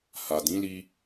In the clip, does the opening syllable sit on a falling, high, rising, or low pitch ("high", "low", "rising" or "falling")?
low